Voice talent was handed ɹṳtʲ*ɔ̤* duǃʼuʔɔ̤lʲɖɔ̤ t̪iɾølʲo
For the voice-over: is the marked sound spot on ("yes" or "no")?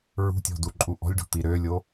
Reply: yes